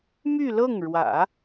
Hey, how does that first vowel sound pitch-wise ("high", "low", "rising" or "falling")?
falling